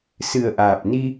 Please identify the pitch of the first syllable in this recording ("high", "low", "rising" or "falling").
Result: low